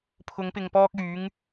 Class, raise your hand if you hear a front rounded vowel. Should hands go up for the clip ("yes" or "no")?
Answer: yes